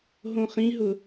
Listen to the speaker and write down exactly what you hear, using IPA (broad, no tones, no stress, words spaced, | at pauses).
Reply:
ɦõχĩɦʊ